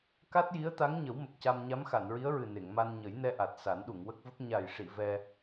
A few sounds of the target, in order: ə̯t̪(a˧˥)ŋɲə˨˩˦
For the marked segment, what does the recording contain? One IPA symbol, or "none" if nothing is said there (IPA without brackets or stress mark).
a˧˥